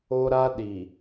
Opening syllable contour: high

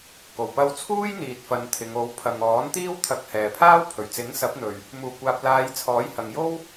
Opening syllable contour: low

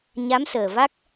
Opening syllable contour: rising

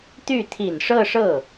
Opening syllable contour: falling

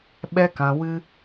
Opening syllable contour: high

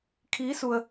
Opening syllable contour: rising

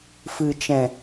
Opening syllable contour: low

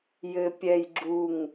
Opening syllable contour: low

